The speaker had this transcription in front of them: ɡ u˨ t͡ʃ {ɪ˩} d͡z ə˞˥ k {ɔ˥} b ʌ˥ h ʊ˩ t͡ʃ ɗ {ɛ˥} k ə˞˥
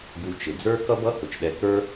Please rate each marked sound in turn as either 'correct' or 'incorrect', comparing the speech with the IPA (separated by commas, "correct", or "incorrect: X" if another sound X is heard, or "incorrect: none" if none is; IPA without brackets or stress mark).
correct, incorrect: ʌ˥, incorrect: ɛ˨